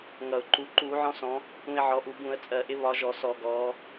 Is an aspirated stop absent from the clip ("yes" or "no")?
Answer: yes